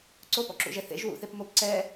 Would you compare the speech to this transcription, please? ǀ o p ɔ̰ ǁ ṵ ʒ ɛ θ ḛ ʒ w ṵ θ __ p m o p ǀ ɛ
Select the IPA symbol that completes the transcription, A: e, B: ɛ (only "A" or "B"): A